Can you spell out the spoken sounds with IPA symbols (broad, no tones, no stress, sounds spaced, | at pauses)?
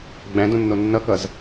ɡ͡b æ̃ d õ nː o nː ʌ k ʌ z